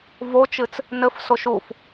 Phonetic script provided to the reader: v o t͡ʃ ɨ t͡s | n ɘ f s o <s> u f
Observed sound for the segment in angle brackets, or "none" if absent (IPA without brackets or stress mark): ʃ